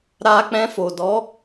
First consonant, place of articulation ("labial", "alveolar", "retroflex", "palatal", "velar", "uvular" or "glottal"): alveolar